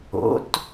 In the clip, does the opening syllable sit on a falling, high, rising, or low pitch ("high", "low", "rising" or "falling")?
rising